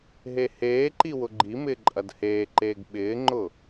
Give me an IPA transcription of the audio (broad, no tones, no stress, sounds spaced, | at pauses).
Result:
ɦ e h eː ǃ i w ʊ ɡ͡ǃ i m ɪː ǃʼ ɐ d h eː ǃ eː ɡ ɓ ɪː ŋ͡ǃ ʊ